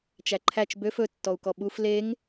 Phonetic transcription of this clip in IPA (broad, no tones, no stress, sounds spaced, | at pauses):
t͡ʃ æ ǃʰ æ t͡ʃ b ø f ɵ tː ɔ u̯ k ɔ ɓ u f l e ŋ